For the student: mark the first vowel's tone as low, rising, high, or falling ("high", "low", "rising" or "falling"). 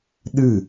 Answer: falling